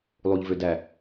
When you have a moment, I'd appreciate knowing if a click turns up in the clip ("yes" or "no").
no